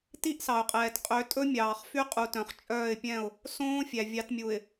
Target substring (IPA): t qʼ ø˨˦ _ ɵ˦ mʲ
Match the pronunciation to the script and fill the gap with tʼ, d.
tʼ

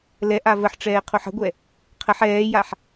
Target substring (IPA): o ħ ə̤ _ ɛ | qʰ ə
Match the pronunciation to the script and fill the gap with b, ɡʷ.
ɡʷ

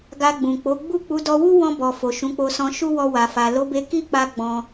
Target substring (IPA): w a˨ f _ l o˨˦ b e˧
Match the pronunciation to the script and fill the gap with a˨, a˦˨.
a˨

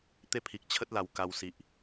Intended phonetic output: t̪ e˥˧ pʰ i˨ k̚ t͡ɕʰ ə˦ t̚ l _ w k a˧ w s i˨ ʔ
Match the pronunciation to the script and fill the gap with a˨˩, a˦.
a˨˩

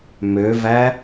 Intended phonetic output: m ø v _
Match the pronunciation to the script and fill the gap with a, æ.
æ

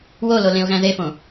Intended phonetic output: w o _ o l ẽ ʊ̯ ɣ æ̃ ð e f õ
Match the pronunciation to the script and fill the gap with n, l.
l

